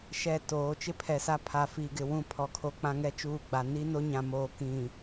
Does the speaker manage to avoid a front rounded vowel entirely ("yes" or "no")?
yes